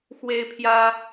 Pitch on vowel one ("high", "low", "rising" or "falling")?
high